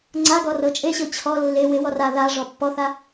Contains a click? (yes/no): yes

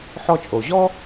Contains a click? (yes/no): no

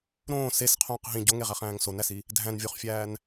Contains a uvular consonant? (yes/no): yes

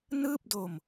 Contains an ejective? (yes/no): no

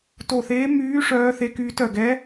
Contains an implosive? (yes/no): no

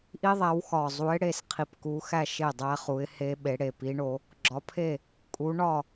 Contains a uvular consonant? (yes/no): yes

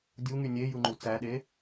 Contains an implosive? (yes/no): yes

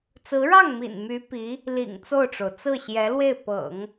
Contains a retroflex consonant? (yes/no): yes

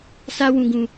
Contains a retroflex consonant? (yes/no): no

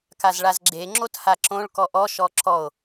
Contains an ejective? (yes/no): no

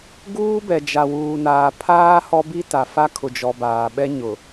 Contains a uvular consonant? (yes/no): no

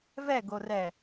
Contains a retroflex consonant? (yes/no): no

